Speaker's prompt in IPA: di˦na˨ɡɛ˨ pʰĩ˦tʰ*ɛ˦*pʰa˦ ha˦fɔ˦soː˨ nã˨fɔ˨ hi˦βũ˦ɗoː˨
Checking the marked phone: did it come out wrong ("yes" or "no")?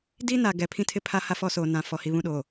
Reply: yes